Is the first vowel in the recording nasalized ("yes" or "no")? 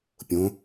yes